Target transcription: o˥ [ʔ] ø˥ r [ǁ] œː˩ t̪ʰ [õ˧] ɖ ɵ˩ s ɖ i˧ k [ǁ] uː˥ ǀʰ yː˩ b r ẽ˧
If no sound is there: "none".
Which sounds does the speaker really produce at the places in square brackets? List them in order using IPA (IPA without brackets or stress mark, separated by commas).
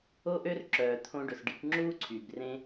ʔ, ǁ, õ˧, ŋ͡ǁ